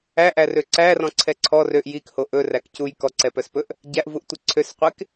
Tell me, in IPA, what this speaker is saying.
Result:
æ ʔ æ r ø ǀ æ r ɔ̃ ǀʰ ɛ ǀʰ ɔ r ø ʔ j i k h o ʔ ɵ r æ k c u j k ɔ ǀ ɛ p œ s p ɵ ʔ | ɟ æ ʔ v u ʔ tʷ i ǀʰ ø s qʷ e k

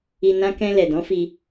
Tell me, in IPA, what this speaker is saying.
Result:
i˧ n ã˦ k ɛ̃˧ l ɛ˨ d ɔ̃˨˦ f i˧

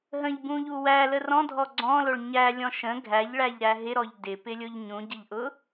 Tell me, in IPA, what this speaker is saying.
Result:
ɦ ə̃ ʎ b ũ ʎ u w æ l ə r ɔ̃ dʱ ɔ ɡ͡ǀ ɔ̃ l ʊ ɭ ɲ æ lʲ ɔ̃ ʃ ə̃ ɡʱ æ ʎ ɭ æ ʎ ɾ æ ɦ ɪ ɾ ɔ ʎ d ɪ p ɪ lʲ ʊ ʎ ɲ ũ ɟ ɪ ʎ ʔ ʊ

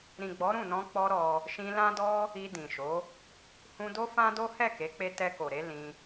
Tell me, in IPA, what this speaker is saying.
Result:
ɾ ĩ˨ ɡ͡b ɔ˨˦ ɾ ũ˦˨ n ɔ̃˧ k͡p ɔ˦ ɾ ɔ˧ | ʃ ĩ˧ l ã˦ d ɔ˦ | i˧ d ĩ˨ ʃ o˨˦ | h ũ˧ d o˦ f ã˦ d o˦ h ɛ˦˨ k e˨˦ k͡p e˧ t ɛ˧ k o˨ ɾ e˨˦ l ĩ˧

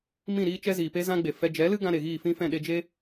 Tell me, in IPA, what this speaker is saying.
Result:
m ĩ˦˨ ɾ iː˦ t͡ʃ ɛ˦ z iː˨ p e˦ z ã˦ ɡ͡b e˨ f ɛ˧ d͡ʒ ɛ˨˦ l ɨ˦ ɡ ã˧ ɾ e˨ ɣ iː˦˨ f ĩ˦ f ɛ̃˦˨ ɗ e˧ d͡ʒ e˦

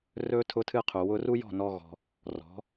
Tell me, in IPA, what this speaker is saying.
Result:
r ɵ˦ tʰ ʊ˦ tʰ ɨ˦ qʰ u˨ w ʊ˧ r u˦ j ɔ̤˦˨ n ɔ˧ ɣ ɔ̤˧ | r ɔ̤˨˦

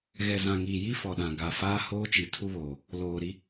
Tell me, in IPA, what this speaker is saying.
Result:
ɣ ɛ˨ z ã˨ ŋ iː˨ j i˦ f ɔ˨ ɗ ã˨ ɡ a˨ f aː˦ h oː˦ t͡ʃ i˨ tʰ u˦ β oː˨ | l oː˨ ɾ i˦

